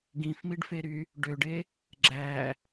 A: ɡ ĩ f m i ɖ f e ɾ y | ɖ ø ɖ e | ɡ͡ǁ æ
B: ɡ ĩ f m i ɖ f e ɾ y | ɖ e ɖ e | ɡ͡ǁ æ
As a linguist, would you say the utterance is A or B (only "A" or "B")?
A